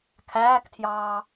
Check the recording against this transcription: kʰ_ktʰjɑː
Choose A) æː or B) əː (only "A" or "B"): A